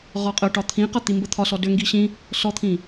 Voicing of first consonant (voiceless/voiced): voiced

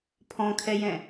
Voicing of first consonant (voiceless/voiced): voiceless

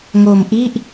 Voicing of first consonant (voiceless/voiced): voiced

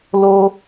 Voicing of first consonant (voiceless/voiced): voiced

